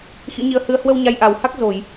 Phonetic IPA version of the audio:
x ḭ˧˥ ɲ i˧ ə̯ h ɨ˧ ə̯ h w ə˧ w ɲ a˧ j ʔ a˨˩ w h a˦˥ k̚ z o˧˩˨ j

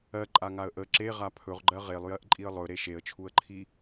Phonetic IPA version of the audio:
ɜ ǃʼ a ŋ a ə̯ ʔ ə ǁ e ʁ a pʰ ɵ ʁ ɡ͡ǃ ɜ ʁ e lˠ j ɜ ʔ ǃʼ i ə̯ lˠ ɵ ɾ e ʃ e ə̯ t͡ʃʰ u ə̯ ǃʰ i

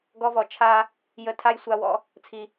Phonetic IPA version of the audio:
ɡ ɔ˧ v ɔ˨ t͡ʃʰ a˧ | j ə˧ tʰ a˦ j sʷ a˧ w ɔ̰˧ | t͡sʰ i˨

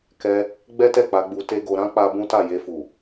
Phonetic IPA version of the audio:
k ɛ˧ | ɡ͡b ɛ˦ t ɛ˦˨ k͡p a˨˦ ɡ͡b u˧ t e˦ ɡ o˧ ɾ ã˦ k͡p a˧ b ũ˦ t a˦˨ j e˧ f u˨

